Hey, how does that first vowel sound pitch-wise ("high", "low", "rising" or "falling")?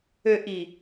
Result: low